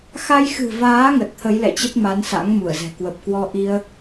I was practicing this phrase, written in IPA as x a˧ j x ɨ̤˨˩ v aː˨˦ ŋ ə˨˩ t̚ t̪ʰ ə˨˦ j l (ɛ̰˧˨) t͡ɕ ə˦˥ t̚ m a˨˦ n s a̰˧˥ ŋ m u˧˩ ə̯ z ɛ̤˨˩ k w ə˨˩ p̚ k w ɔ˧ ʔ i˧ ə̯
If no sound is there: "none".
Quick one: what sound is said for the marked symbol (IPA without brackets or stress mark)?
ɛ̰˧˨